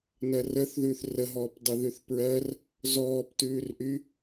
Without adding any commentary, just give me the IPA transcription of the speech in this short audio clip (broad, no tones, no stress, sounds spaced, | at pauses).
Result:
n ɜ r ə θ ð ʉː θ r ə ɦ ɔː p dˤ ə ð ʉ θ p ɹ ɜ r | z ɔː p t ʉː r ʔ y